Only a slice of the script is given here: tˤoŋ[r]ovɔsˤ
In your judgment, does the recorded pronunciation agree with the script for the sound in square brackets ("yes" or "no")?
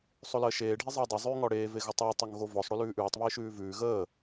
no